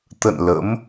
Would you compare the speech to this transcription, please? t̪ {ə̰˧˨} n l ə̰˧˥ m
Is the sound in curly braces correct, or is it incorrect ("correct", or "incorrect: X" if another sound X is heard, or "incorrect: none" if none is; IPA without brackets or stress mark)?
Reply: correct